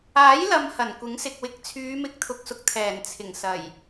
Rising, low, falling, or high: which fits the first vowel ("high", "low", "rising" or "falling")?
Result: rising